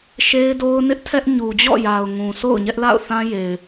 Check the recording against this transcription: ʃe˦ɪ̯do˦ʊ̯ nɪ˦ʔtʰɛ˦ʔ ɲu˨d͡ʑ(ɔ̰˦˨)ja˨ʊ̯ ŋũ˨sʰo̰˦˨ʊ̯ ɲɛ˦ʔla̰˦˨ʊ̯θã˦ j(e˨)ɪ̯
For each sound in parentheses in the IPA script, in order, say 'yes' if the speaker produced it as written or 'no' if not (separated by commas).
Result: yes, yes